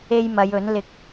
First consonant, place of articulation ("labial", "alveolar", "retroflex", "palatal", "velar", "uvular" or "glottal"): palatal